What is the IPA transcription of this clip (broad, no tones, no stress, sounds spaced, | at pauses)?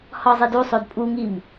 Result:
h ɒ zˤ i d u sˤ o d pʼ u ŋ i m